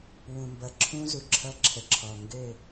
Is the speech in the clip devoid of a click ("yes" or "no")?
no